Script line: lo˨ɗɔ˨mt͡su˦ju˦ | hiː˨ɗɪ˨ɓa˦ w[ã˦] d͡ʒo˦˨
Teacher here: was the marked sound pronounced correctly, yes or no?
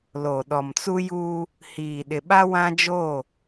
yes